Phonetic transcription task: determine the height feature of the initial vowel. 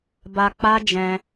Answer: low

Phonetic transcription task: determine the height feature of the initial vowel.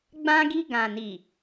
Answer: low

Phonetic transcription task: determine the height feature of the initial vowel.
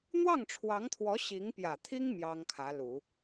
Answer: low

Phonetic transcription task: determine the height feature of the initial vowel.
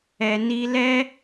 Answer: mid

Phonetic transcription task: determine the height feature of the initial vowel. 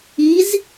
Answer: high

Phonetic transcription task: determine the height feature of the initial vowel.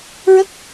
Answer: mid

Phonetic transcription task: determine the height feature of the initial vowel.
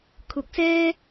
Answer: high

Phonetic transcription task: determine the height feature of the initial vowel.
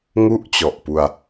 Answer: high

